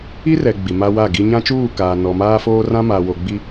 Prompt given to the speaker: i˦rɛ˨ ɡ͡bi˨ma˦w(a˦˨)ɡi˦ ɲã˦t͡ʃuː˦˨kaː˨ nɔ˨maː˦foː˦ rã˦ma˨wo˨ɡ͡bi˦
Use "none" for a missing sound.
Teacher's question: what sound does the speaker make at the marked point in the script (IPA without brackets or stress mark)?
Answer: a˦˨